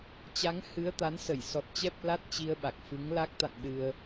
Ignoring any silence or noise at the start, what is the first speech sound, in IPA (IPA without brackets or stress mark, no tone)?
t͡ɕ